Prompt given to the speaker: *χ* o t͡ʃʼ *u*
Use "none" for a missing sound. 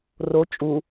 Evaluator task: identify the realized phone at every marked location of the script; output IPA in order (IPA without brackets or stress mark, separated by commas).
r, u